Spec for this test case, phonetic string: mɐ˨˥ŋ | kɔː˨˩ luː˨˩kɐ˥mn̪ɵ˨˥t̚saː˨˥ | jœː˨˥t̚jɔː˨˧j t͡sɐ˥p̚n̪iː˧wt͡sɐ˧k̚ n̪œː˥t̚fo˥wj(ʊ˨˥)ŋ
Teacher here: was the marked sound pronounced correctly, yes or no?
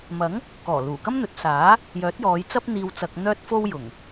no